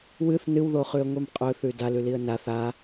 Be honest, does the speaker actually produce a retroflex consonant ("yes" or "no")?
no